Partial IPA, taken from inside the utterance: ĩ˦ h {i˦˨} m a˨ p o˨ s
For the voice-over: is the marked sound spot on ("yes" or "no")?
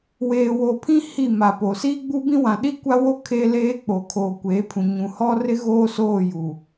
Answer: yes